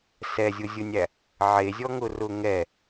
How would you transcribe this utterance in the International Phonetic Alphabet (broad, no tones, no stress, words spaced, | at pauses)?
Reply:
sɛzʲʊzʲʊnʲæ | ʕezʲɔŋʊrʊ ŋɛ